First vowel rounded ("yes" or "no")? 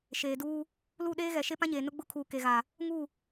no